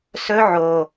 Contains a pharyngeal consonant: yes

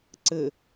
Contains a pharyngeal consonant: no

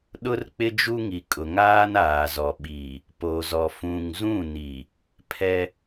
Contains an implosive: yes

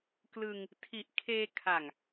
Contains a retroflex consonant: no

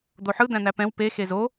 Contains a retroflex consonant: no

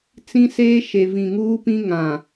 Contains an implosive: no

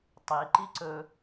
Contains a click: yes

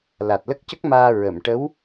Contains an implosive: no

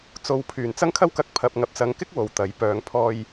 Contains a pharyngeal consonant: no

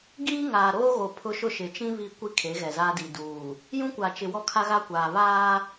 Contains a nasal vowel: yes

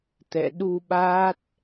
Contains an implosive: yes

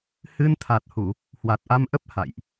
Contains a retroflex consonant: no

